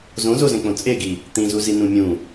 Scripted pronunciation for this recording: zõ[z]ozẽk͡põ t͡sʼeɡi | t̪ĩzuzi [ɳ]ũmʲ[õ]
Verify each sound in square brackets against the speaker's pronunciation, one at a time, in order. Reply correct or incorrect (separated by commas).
correct, incorrect, incorrect